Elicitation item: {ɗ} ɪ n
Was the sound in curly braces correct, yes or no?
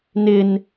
no